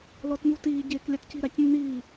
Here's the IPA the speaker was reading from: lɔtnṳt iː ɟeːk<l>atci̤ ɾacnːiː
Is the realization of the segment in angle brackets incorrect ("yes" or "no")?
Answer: yes